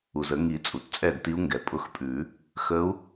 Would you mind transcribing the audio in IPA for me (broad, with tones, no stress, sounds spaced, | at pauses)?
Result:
u˩ z ə˨˩˦ ŋ i˨˩˦ t͡sʼ u˩ t t͡sʼ ɛ˥˩ d t i˧˥ u̯ ŋ ɡ ɛ˩ pʼ ʊ˧˥ x pʼ ʉ˨˩˦ | x ə˧˥ u̯